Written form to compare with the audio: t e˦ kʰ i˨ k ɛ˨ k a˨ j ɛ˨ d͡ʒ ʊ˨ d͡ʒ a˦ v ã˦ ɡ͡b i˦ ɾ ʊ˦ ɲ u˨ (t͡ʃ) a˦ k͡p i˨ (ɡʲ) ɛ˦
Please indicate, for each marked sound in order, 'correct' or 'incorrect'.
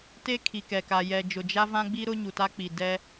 incorrect, incorrect

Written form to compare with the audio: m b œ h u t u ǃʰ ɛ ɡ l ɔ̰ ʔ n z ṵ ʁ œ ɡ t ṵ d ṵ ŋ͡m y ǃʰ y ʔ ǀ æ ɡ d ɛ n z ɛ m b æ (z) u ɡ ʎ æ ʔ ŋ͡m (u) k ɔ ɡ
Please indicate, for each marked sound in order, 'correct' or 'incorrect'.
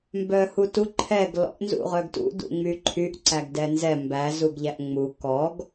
correct, correct

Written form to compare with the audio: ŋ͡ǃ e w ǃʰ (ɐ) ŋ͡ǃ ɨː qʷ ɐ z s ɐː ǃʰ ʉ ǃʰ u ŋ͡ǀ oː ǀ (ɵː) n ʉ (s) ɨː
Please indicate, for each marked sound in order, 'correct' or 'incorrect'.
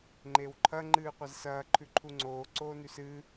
correct, incorrect, correct

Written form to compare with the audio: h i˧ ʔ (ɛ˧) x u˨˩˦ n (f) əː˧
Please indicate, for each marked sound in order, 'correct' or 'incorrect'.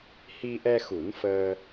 correct, correct

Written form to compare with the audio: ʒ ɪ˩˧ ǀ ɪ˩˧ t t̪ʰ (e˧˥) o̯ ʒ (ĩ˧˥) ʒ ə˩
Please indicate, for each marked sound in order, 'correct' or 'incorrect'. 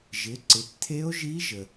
correct, incorrect

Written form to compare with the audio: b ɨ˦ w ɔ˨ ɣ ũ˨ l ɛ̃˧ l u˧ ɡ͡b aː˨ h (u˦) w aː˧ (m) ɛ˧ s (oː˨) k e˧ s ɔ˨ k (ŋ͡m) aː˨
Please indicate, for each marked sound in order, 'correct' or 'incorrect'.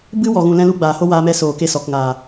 incorrect, correct, correct, incorrect

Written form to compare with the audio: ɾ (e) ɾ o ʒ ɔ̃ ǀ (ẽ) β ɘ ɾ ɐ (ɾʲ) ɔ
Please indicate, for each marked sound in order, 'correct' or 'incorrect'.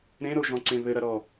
incorrect, correct, incorrect

